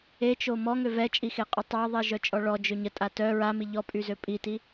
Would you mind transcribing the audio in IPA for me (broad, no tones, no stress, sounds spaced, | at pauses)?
e t͡ʃ o m ɔ ŋ ø v ɛ t͡ʃʼ i x e qʼ y tˤ a ðˤ i ʒ œ t͡ʃʼ ɔ ɭ ɔ d͡ʒ ø ɲ ə tʼ a t œ ɹ a m i ʎ ɔ pʼ y z ø pʼ i t i